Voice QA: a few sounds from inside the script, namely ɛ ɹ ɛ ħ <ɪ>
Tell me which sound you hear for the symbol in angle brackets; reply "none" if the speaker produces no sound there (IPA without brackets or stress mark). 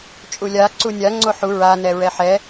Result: ɛ